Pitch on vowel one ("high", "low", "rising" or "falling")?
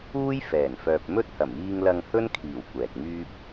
high